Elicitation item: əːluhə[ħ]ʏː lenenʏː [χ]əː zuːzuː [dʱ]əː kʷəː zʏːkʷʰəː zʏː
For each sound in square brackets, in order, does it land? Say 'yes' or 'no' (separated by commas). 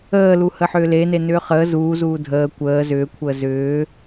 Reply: yes, yes, yes